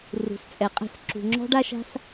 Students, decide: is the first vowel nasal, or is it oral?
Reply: oral